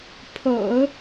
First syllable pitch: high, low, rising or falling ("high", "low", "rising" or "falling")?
low